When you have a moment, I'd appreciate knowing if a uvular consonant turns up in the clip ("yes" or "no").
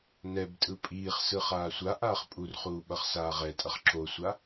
yes